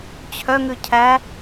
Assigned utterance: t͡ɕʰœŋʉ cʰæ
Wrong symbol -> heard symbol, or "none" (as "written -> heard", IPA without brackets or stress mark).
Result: none